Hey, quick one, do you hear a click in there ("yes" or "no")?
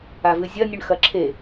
yes